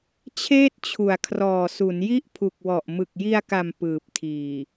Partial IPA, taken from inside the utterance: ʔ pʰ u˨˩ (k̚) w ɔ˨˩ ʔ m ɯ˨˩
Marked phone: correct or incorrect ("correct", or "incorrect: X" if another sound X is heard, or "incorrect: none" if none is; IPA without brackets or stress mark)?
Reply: correct